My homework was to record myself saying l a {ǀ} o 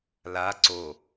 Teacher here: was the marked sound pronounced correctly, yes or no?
yes